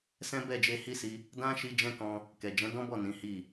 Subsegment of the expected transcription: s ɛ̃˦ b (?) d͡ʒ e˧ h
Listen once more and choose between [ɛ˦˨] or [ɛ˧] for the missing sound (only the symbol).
ɛ˦˨